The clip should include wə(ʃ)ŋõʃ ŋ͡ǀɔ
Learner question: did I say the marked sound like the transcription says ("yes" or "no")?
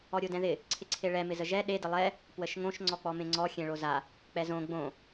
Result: yes